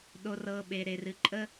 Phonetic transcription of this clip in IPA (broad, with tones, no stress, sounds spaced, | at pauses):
ɗ o˨ r ɤ˨ ɓ e˨ ɾ e˨ r ɨ˨ ǃʼ ə˦